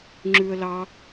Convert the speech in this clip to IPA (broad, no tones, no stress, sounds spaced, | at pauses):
ŋ͡ǁ ʉ ə̯ l ɑ